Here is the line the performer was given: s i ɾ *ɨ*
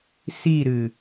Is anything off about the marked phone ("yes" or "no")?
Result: no